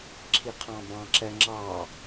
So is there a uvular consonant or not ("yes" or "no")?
yes